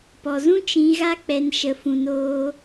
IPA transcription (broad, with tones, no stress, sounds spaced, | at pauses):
p ɔ˨ z ũ˦ t͡ʃ ĩ˧ ɣ a˦ k͡p ɛ˧ n ʃ ə˧ f ũ˧ n oː˦